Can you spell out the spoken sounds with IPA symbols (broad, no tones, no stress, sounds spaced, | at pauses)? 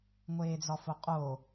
ŋʷ eː d͡z ɒ f o qʼ o